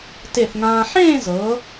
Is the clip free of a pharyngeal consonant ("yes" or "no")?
no